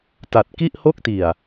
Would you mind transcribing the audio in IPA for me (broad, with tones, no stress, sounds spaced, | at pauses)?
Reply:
t a˨˩ t̚ k i˥˩ ʔ h o˥˩ k̚ t i˨˩ a̯